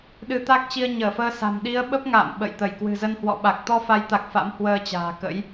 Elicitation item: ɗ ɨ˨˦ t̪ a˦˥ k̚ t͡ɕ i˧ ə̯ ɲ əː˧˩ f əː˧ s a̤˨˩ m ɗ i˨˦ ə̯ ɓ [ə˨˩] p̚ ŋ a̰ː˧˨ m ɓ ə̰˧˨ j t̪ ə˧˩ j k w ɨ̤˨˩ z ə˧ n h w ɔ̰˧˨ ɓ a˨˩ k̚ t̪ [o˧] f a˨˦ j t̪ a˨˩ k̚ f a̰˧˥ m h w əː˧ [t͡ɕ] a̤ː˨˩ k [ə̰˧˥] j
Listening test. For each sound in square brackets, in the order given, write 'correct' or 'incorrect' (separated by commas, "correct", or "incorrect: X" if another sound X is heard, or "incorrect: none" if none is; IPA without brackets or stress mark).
incorrect: ə˦˥, incorrect: ɔ˧, correct, correct